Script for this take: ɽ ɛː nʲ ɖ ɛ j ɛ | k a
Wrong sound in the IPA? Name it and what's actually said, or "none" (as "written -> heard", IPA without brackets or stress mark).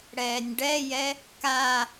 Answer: none